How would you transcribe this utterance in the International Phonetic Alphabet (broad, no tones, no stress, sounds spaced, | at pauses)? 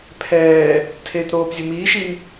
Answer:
pʰ ɛː | tʰ eː t ɾ oː p zʲ ʊ m iː ʃ i n